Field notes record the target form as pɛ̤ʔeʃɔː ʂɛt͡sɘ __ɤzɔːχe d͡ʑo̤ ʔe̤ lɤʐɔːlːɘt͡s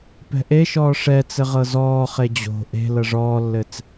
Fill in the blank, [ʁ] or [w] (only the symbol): ʁ